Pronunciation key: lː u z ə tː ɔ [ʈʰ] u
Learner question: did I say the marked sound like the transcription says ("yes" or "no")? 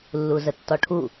yes